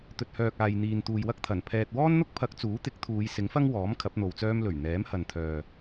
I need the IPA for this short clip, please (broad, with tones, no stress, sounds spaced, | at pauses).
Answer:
t̪ ɵ˨ t̚ h œː˨ k̚ aː˨ j n̪ iː˨ n t̪ uː˨ j w ɐ˥ k̚ t̪ʰ ɐ˨˩ n pʰ ɛː˨ t̚ w ɔː˥ n n̪ ʊ˥ k̚ pʰ ɐ˨˥ k̚ t͡s uː˨˥ t̪ ɪ˨˥ k̚ t̪ʰ uː˨˧ j s ɪ˨˥ ŋ f ɐ˥ ŋ w ɔː˨˥ m kʰ ɐ˨˥ p̚ n̪ o˨ w t͡s œː˥ m l ɵ˨˩ ɥ n̪ ɛː˨˥ m h ɐ˨ n t̪ʰ œː˨